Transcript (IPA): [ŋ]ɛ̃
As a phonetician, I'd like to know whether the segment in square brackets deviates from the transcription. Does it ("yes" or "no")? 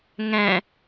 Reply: no